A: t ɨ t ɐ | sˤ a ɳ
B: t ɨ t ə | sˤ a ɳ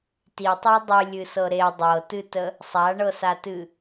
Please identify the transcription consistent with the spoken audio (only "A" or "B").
B